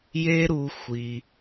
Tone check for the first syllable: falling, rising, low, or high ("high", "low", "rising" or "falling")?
high